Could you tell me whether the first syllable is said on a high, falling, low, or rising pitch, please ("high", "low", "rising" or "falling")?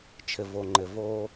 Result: low